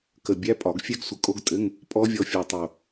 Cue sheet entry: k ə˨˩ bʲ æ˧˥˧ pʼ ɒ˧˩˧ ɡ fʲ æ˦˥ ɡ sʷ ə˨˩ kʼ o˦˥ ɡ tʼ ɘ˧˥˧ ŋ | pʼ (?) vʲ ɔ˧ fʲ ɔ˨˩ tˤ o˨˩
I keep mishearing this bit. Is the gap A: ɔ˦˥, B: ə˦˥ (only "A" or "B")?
A